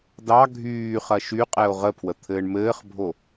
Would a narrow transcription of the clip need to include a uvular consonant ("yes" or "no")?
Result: yes